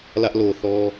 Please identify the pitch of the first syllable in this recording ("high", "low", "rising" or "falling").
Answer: high